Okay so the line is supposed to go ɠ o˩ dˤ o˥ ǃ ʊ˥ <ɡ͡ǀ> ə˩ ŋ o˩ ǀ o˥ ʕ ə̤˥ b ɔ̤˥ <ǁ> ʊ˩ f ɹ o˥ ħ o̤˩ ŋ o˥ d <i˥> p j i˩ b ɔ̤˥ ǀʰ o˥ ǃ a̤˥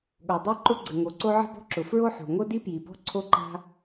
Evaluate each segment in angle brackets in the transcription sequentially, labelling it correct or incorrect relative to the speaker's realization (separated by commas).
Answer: correct, correct, correct